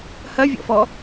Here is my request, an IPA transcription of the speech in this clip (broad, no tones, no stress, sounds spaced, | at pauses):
h ɐ vʲ ɔ̰ f ɔ